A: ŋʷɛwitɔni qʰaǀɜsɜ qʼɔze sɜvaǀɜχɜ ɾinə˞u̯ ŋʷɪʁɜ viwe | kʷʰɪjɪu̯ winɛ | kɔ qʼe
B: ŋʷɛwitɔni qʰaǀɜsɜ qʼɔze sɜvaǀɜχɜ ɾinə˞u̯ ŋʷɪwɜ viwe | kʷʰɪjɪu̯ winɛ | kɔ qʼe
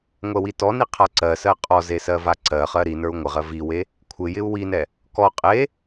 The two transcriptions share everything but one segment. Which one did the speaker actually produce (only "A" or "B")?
A